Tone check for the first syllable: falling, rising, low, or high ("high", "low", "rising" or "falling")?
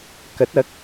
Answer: rising